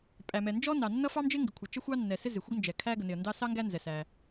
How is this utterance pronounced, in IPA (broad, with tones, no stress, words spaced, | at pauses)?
pʼæ˩mɛ˩nd͡ʒɔ˥ nɑ˩nːʌ˥ fɑ˥md͡ʒɪ˥ŋɡɪ˩kʷʰʌ˩ t͡ʃə˥xʷɑ˥nːɛ˩sɪ˥ zɪ˩xʷə˥ɡnd͡ʒɛ˩ kʰæ˥ɡə˩nɪ˩ə̯ndɑ˥ sɑ˥ ŋɡæ˥nzɛ˩ sæ˩